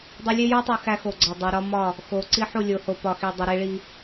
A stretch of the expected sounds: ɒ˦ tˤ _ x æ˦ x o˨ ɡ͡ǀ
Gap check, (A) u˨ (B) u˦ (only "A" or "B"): A